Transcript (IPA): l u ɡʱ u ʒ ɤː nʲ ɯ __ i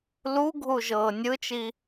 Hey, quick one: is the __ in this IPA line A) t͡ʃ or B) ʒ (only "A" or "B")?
A